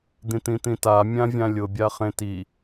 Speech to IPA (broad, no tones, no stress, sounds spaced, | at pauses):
d̪ ĩ t̪ ĩ t̪ ĩ t a mʲ ã vʲ ã lʲ ʊ bʲ a χ ẽ t i